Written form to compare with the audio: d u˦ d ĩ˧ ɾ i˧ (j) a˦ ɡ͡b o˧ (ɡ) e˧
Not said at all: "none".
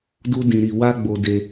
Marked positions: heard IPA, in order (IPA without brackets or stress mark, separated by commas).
w, d